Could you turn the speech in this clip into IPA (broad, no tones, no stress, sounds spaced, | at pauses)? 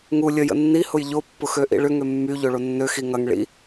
ŋ u lʲ ə j ə̰ nː i h ʊ j ʎ o pː ʊ x ø ʔ ḭ ɭ ʏ ŋ ø mː y ʎ o ɭ o nː ø x i ŋ ɐ ŋ ɭ ḭ